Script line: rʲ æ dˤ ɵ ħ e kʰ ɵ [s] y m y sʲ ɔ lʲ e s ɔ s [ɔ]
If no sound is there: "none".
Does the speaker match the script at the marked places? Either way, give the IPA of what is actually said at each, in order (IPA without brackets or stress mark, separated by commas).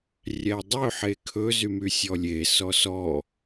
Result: z, ɔ